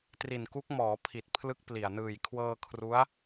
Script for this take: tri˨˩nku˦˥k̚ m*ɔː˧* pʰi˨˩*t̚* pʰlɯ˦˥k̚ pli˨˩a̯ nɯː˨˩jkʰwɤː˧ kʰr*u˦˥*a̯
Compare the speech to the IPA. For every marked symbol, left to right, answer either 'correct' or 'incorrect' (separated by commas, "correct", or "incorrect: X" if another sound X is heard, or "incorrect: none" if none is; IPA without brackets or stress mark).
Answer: incorrect: ɔː˩˦, correct, correct